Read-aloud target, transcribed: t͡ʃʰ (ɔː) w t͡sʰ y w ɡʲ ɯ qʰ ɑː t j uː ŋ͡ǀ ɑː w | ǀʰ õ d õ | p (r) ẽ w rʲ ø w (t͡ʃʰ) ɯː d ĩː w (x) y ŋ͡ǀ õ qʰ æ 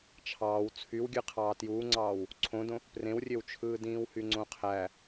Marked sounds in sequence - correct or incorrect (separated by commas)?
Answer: incorrect, correct, correct, incorrect